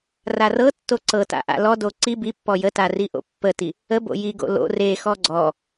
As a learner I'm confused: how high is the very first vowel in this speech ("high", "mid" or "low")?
low